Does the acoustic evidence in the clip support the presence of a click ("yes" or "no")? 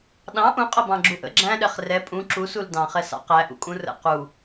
yes